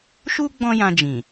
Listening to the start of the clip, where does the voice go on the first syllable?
high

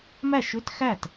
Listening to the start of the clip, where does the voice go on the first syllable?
falling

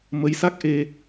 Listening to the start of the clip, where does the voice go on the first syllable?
rising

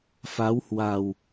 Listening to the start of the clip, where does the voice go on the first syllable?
rising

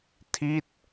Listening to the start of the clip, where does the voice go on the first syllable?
falling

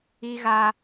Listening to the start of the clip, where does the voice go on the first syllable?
high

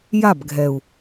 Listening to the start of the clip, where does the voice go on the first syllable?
falling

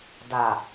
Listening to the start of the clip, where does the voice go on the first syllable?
low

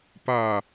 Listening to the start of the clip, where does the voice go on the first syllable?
falling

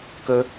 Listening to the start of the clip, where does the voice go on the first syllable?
high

